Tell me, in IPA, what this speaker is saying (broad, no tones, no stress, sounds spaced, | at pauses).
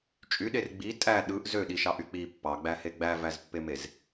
t͡ʃʼ y ɗ e r ɡ͡b i tʼ æ ɗ ɯ ʔ z ø ɗ i ʃ ɑ ʔ y k͡p i pː ɑ ɡ͡b æ h e ɡ͡b æ v æ z pː e m e z